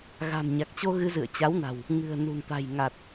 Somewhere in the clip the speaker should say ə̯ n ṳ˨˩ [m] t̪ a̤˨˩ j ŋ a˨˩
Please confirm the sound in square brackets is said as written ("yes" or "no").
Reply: no